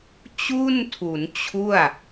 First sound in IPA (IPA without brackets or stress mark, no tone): t͡ɕ